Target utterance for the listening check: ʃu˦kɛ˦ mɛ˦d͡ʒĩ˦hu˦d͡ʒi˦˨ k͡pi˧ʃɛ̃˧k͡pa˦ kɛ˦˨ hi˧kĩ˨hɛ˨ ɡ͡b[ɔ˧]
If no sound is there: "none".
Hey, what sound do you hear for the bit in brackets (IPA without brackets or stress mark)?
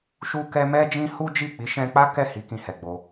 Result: o˧